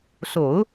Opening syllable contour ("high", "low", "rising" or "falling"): low